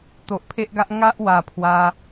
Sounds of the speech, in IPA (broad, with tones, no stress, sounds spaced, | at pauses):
t̪ o˨ ʔ pʰ e˦ ʔ ɡ a˦ ʔ ŋ a˦ ʔ w a˨˩ pʰ w a˧